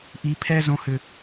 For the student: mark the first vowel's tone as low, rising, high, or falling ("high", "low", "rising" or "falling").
low